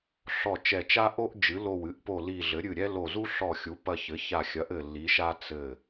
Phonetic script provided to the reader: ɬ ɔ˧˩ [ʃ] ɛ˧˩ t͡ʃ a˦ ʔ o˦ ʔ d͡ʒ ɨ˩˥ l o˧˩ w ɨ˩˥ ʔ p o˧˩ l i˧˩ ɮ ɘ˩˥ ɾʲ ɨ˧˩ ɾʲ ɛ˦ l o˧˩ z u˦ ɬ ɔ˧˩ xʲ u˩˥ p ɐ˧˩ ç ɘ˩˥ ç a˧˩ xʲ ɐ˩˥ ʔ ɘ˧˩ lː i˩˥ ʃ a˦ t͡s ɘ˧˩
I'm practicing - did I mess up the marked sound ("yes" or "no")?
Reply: yes